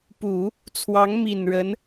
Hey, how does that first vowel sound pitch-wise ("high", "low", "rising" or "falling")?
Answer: low